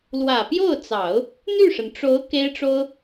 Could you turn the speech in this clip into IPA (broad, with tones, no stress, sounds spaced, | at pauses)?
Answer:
l w ä˨˩ p j o˥˩ ʊ̯ t͡s ɑ˨˩˦ ʊ̯ | n̪ y˥˩ ʂ ə˩ n ʈ͡ʂ o˧˥ ʊ̯ k e˥ ɪ̯ ʈ͡ʂ o˥ ʊ̯